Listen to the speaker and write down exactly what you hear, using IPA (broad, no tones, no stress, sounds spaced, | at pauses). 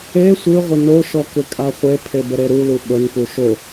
e sʷ ɯ ʁʷ ɪ n o ʃ ɔ k ɪ kʼ a χʷ e pʰ e b ə ɾ e ɾ u l u ɓ ə n p u ʃ o